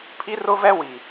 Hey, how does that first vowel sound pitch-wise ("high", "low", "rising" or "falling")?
high